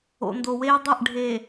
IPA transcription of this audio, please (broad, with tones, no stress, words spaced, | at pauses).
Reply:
o̰˨ndo˨weː˦ dˤɘ˦˨ʔ ɖʱe˨